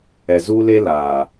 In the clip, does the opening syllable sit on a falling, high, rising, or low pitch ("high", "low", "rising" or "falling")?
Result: low